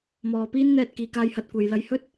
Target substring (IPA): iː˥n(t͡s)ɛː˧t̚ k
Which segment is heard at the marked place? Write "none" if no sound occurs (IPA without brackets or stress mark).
n̪